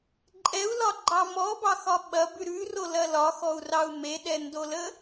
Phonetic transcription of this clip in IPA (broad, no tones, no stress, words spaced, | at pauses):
ǃʼɛu̯lɒɡ͡ǃɑ mɔbɑxɒ ɓɐbʉ ɾʉrolɐ lɒxɔu̯rɑu̯ meɗɛndolə